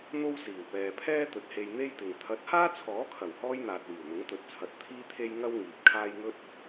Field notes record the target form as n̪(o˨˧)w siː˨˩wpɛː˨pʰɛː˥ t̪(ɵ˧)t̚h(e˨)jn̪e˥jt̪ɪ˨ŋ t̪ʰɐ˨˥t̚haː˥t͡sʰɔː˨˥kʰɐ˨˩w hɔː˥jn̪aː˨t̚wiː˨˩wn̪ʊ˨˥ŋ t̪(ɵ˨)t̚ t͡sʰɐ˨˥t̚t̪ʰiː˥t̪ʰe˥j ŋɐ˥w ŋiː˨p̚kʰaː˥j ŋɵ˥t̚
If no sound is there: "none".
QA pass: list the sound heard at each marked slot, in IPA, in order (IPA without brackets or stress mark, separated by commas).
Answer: o˥, ɵ˨, e˧, ɵ˨